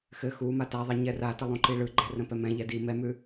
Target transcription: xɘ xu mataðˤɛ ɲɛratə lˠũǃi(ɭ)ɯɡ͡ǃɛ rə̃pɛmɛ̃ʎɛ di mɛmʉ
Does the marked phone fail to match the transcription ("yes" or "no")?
no